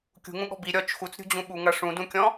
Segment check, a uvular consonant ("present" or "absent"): absent